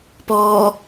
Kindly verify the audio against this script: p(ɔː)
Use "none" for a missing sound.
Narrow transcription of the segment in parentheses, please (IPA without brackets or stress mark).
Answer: ɔː